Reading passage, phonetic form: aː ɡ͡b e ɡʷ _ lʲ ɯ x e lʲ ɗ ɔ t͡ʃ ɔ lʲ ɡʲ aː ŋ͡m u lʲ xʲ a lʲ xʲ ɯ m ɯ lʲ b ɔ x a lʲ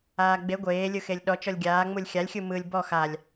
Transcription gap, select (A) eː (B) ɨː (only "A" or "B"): A